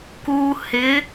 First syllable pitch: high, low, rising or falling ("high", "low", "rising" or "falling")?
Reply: low